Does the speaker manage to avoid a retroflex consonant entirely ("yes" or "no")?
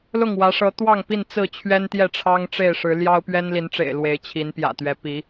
no